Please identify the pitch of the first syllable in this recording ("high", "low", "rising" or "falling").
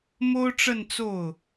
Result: high